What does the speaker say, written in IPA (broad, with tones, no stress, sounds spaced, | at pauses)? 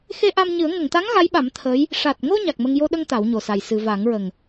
x e˧ ʔ a˧ m ɲ ɨ˨˩˦ ə̯ ŋ ə˨˩˨ ŋ t̪ a˧˥ ŋ ɣ a˧˥ j ɓ a˨˩˦ m t̪ʰ əː˧˥ j | ʂ a˨˩ t̚ ŋ o˧ ɲ a˨˩ k̚ m ə˧ ŋ j o˧ ɗ ə˧ ŋ t̪ a˨˩˦ w ɲ o˨˩ s a˨˩ j s ɨ˨˩˨ v a˨˩˦ ŋ ɹ ə˨˩ ŋ